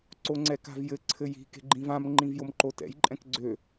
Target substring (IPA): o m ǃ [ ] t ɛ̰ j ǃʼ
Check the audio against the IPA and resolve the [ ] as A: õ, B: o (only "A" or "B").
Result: B